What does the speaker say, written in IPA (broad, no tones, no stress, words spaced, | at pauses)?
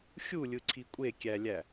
xʲulʲɯǀʰi kʷʼekʲælʲæ